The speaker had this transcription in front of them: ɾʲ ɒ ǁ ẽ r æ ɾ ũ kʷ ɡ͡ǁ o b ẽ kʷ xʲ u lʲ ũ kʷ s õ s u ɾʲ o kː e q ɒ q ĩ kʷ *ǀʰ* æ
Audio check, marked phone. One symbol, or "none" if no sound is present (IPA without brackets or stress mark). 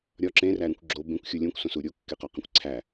ǀʰ